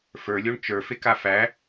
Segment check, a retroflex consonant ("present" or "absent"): present